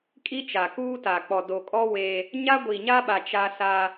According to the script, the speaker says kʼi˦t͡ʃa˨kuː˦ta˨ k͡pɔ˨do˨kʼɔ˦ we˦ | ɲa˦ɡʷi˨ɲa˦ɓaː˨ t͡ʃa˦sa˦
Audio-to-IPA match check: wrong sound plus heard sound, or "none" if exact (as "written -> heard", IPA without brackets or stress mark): aː˨ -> a˨